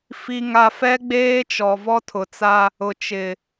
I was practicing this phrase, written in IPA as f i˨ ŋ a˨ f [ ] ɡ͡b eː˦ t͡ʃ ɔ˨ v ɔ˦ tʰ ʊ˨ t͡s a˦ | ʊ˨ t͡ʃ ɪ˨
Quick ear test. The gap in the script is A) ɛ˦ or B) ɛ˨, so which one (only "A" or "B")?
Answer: A